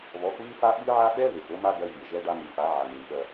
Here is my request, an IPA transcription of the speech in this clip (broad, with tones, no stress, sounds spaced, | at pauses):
β ɔ˨˦ x β ɨ˦ f a˦ ɓ ɨ˦ ʕ a˦ ɓ ɛ˦ β e˨ x o˦ m a˦ ɡ ɜ˦ vʲ ɜ˨ ʒ ɛ˦ ɖ a˦ m ɨ˨ f a˨˦ ʕ a˨ m ɨ˨ m ɓ ɜ˦